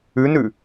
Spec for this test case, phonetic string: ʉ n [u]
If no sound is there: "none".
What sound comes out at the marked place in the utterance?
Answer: ʉ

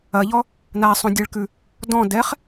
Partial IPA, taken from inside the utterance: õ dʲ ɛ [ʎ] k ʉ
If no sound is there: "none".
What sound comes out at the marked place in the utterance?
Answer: ɭ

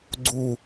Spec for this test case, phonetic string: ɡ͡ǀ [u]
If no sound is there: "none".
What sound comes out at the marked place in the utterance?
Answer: u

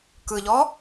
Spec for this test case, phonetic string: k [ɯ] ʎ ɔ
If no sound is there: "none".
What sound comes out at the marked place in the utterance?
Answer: ɯ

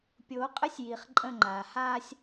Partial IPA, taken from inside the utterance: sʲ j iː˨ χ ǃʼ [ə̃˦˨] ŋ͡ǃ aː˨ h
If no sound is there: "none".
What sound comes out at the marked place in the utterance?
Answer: ə̃˦˨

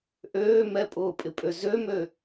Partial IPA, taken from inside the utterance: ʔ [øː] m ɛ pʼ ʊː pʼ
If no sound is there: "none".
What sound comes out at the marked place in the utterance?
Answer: øː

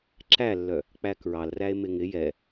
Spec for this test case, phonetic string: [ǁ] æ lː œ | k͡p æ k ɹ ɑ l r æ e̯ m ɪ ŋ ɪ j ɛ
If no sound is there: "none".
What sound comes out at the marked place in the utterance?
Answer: ǁ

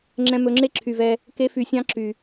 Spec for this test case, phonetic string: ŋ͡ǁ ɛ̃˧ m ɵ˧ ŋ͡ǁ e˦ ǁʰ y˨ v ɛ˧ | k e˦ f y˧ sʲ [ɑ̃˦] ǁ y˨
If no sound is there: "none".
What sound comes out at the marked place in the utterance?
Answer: ɑ̃˦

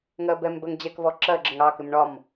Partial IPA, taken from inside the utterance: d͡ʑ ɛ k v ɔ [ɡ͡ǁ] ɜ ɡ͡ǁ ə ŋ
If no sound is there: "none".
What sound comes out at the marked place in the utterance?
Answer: ǁ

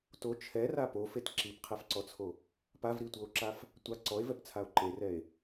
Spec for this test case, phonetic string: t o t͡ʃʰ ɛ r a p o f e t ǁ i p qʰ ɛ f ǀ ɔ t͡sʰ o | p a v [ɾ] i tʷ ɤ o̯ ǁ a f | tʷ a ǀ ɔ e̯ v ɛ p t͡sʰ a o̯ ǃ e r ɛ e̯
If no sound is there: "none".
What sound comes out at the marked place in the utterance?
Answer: ɾ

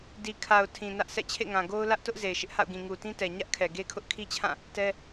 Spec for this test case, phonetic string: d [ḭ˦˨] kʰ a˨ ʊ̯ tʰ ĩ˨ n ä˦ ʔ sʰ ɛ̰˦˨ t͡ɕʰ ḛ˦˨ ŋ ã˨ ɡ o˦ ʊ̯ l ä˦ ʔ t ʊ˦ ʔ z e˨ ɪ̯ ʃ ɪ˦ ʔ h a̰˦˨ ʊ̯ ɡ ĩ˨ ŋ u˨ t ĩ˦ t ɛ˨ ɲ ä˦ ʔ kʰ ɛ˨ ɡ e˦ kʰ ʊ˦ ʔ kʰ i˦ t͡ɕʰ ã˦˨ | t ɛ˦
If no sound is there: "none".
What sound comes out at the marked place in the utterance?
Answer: i˨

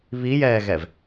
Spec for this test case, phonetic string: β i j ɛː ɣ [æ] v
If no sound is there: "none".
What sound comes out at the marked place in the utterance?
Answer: ɛ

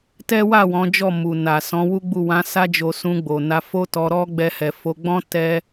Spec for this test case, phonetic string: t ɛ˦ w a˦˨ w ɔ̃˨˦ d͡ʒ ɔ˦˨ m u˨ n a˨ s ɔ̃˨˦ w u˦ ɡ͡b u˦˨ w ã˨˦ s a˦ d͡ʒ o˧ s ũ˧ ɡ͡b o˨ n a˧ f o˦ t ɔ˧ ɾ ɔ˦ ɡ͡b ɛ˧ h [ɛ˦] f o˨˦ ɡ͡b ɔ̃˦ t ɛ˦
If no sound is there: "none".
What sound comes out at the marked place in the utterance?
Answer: ɛ˨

